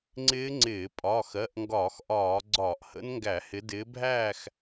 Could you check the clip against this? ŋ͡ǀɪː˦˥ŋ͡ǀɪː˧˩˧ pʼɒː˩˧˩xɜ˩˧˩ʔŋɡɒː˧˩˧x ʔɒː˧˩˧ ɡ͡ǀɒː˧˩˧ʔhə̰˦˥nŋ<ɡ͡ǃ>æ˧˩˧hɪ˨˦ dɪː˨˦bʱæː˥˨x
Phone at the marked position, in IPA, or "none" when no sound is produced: ɡ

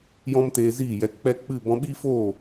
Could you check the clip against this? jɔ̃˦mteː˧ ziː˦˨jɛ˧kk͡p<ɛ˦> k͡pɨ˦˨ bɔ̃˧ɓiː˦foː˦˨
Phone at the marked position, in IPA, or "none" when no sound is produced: ɛ˦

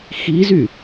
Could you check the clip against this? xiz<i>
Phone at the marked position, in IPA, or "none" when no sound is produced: y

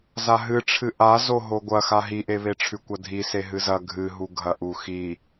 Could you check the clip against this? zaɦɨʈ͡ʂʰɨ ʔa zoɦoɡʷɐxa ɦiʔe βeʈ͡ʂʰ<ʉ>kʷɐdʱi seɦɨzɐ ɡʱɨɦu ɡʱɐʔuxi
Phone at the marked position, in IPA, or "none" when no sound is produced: ʉ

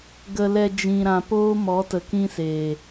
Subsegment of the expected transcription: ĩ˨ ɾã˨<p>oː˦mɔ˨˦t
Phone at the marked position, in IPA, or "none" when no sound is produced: p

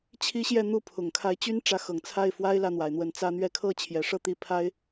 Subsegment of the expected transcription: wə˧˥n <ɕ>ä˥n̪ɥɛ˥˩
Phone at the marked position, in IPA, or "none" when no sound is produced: t͡s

